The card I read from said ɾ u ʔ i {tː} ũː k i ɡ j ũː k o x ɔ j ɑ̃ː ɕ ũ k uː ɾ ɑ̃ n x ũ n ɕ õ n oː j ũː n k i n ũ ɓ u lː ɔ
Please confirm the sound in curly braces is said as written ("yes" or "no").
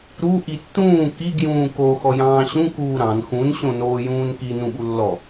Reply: yes